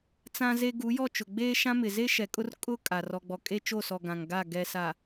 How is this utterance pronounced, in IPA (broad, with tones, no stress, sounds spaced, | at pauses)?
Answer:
t͡s ã˦ z e˦ ɡ u˨˦ j ɔ˦˨ t͡ʃ ʊ˨ ɡ͡b eː˦ ʃ ã˦ m ɪ˨ z e˦ ʃ ɛ˨ kʼ ʊ˦ r kʼ ʊ˦ kʼ a˨ r ɔ˨ ɡ͡b ɔ˨ kʼ e˦ t͡ʃ o˦˨ s ɔ˨ ɡ ã˨ ŋ ɡ a˦˨ ɡ ɛ˨ s a˨